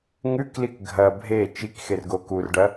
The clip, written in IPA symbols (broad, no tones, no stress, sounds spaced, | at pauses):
ŋ ʉ k l i k ɡʱ ɐ bʱ e t͡ʃ i k x e r ɡ o k u r ɖ ɐ